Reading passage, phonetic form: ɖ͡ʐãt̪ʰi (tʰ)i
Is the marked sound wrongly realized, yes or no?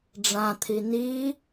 yes